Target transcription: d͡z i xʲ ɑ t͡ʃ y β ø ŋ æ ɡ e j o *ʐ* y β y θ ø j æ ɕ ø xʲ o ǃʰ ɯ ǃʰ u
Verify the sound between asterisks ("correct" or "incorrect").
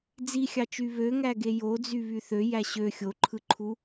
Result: incorrect